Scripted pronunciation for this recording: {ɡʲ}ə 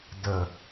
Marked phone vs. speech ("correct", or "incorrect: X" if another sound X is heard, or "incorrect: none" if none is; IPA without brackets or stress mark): incorrect: d